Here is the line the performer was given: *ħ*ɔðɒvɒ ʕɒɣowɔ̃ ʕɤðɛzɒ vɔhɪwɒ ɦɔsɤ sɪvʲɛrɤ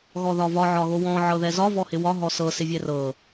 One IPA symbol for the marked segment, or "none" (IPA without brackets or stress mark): ɣ